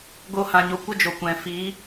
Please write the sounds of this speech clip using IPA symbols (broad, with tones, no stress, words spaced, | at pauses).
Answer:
ɡo˦hã˧ɲo˧ kʷə˦ d͡ʒo˨kʷɛ̃˨ fi˨˦